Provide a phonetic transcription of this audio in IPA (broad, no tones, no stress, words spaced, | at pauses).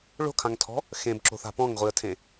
ɭo̤kʰãŋtʰɔ̤ | xẽbǁo̤ θa̤pɔ̃ŋʁʷiə̯tʰẽ